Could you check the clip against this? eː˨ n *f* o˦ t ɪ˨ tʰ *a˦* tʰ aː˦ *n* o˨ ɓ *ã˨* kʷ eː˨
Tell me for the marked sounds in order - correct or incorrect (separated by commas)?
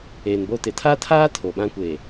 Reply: incorrect, correct, incorrect, incorrect